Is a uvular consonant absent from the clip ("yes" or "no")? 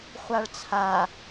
no